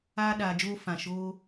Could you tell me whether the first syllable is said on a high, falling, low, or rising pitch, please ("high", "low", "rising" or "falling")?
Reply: high